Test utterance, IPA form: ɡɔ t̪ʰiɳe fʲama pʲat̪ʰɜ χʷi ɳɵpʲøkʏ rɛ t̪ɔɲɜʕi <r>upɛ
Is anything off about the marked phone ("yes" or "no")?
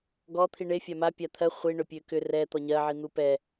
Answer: yes